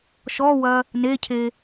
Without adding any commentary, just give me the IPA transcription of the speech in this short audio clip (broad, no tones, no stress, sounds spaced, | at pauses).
ʃ ɔ w ɐ | n e cʰ e